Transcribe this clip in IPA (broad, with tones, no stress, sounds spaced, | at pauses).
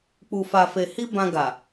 k͡p u˨ f a˨ f e˨ h i˧ b ã˧ ɡ a˨